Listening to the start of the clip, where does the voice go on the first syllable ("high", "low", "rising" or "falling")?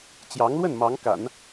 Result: rising